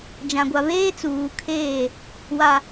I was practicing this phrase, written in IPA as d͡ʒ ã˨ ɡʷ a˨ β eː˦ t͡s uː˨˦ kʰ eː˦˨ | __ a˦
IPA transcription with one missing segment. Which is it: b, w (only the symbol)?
w